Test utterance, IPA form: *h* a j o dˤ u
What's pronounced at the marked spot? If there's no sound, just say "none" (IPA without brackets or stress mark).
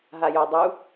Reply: ɦ